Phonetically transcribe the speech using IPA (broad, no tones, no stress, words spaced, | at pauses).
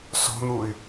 sɔ̤n̪uy̯